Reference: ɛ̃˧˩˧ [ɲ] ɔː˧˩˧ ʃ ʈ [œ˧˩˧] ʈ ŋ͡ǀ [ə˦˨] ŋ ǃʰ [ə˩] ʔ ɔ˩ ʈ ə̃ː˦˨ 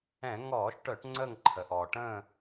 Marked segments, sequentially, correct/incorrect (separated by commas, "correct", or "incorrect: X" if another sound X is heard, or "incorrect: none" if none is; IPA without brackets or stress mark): incorrect: ŋ, correct, correct, correct